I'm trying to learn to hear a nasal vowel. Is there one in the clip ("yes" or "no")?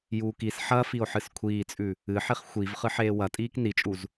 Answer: no